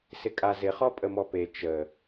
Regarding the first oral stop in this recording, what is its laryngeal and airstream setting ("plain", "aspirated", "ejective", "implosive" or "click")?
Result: ejective